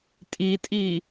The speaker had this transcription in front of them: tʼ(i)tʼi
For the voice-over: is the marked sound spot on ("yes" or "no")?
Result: yes